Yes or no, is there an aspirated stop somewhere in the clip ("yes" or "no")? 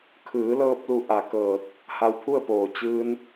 yes